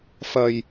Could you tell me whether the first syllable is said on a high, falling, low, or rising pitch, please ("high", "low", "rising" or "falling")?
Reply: low